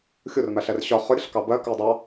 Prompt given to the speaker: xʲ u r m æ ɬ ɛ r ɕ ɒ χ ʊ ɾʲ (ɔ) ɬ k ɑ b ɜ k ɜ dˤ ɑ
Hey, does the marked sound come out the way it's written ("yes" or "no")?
no